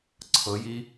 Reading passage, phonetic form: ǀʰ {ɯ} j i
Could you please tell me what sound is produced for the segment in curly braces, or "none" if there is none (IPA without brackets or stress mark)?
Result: ɤ